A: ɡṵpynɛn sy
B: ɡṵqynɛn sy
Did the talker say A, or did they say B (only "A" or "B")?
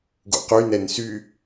B